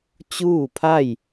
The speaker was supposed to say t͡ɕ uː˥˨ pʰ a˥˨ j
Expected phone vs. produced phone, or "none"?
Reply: none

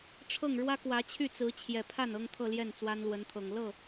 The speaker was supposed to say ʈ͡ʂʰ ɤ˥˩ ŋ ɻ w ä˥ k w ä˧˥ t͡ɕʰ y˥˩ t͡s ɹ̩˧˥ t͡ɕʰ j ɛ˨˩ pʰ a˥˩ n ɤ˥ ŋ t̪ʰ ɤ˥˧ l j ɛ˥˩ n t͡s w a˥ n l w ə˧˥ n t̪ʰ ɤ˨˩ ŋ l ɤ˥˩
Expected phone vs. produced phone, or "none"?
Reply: none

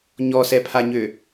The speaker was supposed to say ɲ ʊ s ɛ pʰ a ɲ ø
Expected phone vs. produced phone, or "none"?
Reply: ʊ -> ɔ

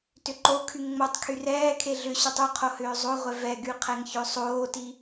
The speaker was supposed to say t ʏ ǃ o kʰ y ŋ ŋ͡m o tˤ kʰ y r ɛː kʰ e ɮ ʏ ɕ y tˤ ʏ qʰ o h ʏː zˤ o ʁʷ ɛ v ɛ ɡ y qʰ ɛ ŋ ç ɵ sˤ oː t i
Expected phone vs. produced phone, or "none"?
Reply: none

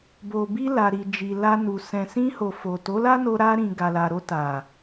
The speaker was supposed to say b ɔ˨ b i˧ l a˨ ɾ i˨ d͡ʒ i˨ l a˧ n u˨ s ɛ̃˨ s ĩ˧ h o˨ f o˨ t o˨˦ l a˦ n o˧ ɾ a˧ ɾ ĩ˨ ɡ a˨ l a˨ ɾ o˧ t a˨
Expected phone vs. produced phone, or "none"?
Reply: ɔ˨ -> o˨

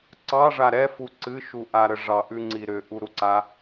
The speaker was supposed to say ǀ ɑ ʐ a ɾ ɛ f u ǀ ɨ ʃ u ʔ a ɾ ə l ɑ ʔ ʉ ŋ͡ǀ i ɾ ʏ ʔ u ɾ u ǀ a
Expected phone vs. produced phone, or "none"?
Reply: l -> ʐ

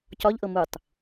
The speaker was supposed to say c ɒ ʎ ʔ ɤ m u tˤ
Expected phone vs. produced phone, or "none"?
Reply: none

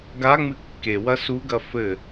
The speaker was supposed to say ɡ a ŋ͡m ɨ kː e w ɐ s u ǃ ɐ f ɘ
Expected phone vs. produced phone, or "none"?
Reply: ǃ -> ɡ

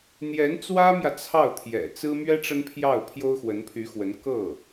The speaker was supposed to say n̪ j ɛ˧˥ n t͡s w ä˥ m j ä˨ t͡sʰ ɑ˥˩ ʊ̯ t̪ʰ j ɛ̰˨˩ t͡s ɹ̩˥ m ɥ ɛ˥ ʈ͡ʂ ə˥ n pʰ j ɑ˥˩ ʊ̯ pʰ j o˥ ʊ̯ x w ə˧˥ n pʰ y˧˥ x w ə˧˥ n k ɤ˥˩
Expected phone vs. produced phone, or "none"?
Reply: none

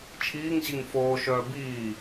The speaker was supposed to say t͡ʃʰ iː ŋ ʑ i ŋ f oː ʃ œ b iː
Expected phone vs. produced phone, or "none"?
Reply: œ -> œː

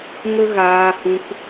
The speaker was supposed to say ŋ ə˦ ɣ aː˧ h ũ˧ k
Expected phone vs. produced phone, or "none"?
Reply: none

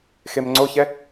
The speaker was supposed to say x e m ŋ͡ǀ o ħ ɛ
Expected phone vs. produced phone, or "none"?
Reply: ħ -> ç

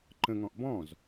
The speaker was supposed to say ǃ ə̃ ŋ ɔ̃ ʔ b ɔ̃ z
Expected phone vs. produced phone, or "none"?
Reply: none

